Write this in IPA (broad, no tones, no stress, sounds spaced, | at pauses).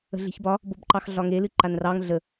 ə̤ ɮ e̤ ç b ɒ | b o b ǃ ɑ x ɮ ɒ ŋ e l ɨ ǃ a n r ɑ ŋ ɮ ə